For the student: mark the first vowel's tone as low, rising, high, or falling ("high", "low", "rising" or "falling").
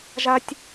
high